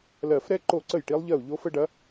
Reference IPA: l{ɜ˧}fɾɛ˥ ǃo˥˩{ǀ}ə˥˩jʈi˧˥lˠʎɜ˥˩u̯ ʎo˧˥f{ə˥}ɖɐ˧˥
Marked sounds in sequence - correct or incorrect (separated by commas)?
incorrect, correct, correct